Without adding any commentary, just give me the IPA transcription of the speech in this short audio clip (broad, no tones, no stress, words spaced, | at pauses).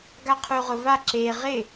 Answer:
ɡaqʰuʁʊva ǁe ʁɪ